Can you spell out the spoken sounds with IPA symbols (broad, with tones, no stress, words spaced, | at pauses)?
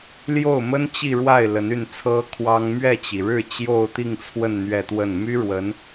ljo˥˩ʊ̯mə˥n t͡ɕi˥˧ɻwa˥˩ɪ̯ lə˧˥ny˥˩nt͡sʰɤ˥ kʰwɑ˥ŋ mɥɛ˥˩t͡ɕi˩ɻɻ̩˥˧ t͡ɕjo˥˧ʊ̯t̪i˥˧ŋt͡sʰwə˥˧n n̪ɥɛ˥˧t̪wə˥˩n my˥ɻwə˧˥n